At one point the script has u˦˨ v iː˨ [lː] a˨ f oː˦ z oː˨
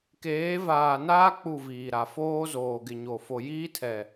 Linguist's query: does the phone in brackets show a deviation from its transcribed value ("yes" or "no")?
yes